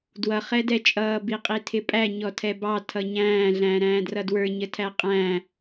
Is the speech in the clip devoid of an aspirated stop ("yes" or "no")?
no